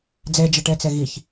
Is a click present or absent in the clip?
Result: absent